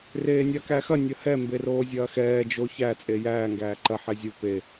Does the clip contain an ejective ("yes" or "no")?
yes